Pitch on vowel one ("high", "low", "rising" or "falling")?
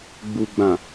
low